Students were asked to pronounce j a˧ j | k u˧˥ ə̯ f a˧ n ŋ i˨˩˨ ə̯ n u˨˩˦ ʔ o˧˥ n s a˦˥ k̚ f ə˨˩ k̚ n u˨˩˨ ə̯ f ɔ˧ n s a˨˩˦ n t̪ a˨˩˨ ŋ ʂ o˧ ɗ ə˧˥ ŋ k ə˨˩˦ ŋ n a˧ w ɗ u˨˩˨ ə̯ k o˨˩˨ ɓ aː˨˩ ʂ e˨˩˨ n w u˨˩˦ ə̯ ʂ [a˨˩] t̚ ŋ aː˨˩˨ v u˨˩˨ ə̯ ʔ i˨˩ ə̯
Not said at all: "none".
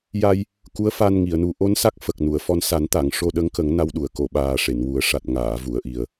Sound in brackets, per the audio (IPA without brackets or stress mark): a˨˩